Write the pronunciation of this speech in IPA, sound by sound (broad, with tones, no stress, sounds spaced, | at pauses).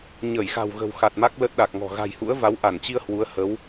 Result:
ɲ ə˧˩ j x a̤˨˩ w ɣ ə̤˨˩ w x a˨˩ t̚ m a˦˥ k̚ l ə˦˥ t̚ ɗ a˨˩ k̚ ŋ ɔ̤˨˩ ɣ a̤˨˩ j h ṵ˧˥ ə̯ v a˨˦ w ʔ a˧˩ n t͡ɕ i˧ ə̯ h w u˨˦ ə̯ h ə˨˦ w